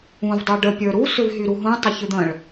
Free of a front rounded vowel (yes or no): no